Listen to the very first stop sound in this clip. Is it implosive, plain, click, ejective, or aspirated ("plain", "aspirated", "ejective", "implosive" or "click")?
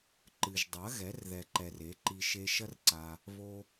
click